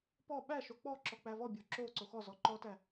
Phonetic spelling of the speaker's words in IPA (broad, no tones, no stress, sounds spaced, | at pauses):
p ɔ ɓ æ ʃ o k͡p ɔ ǁ ɔ k͡p æ v ɔ bʲ o ǁ o ǀ o x ɔ z ɔ ǃ ɔ t æ